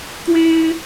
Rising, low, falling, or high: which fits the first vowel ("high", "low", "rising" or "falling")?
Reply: high